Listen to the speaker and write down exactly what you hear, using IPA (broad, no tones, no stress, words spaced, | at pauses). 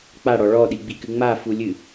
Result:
k͡paɽɔ ɭɔɗiɡ͡bikɨ ŋ͡mafulʲɨ